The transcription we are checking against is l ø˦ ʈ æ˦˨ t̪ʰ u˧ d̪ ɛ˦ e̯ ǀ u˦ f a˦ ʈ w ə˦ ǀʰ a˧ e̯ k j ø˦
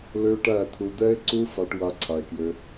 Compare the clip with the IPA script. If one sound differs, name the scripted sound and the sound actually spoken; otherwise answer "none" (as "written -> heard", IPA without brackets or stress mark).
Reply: ə˦ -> a˦